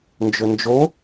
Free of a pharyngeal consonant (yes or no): yes